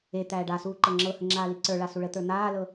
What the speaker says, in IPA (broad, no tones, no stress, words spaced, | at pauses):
et̪æː ɖasuː ǃɤŋ͡ǁɤhə ŋ͡ǁaːliǀə˞ɭa suɭət̪ə˞ n̪aːlɤ